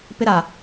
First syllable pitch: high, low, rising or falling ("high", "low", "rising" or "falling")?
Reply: high